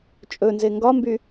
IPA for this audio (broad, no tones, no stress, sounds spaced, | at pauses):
t͡ʃʼ ɵ n z e ŋ ɡ ɒ m b y